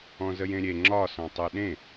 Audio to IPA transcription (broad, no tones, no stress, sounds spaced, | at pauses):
ɔ̃ z ə j ẽ ɾʲ e ŋ͡ǁ ɒ s ɔ̃ tˤ ɯ ɗ ẽ